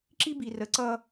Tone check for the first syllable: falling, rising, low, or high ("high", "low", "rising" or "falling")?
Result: high